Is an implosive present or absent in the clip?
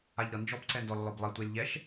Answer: absent